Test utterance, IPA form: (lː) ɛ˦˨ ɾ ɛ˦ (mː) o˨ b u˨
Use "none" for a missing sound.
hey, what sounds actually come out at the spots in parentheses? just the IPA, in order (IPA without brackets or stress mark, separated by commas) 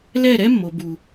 l, mː